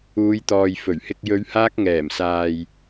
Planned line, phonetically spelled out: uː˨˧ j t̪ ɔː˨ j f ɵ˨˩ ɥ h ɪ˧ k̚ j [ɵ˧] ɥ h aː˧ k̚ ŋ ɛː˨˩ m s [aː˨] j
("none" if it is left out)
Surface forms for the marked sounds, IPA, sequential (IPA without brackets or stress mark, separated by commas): ɵ˨˧, aː˨